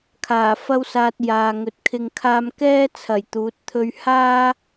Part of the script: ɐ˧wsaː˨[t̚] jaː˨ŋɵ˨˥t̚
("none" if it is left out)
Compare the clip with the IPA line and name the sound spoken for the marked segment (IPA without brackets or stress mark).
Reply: t̚